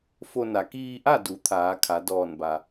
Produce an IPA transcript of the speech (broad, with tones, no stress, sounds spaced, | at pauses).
f o˧ n a˩˧ k iː˧ ʔ a˥˨ d u˩˧ t̪ʰ aː˩˧ kʰ a˩˧ d ɔː˧˩ n b a˩